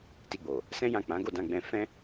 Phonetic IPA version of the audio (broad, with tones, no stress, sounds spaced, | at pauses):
t i˧ ɡ͡b o˨ | s ɛ̃˦ j ã˦˨ k͡p ã˨˦ ɡ o˦˨ d ã˧ ɡ͡b ɛ̃˧ f ɛ̃˦